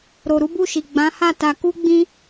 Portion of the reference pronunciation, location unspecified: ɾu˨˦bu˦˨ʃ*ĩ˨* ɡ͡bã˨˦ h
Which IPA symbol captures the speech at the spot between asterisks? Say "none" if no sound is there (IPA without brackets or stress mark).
i˨